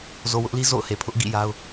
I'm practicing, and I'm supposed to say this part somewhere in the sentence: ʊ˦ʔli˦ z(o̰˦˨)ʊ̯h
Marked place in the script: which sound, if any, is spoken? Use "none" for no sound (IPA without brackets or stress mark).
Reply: o̰˦˨